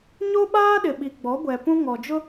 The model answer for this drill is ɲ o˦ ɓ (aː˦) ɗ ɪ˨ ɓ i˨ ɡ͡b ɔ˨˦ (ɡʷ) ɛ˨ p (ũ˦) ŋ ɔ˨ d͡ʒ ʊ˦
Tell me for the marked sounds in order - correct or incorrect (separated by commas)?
correct, correct, correct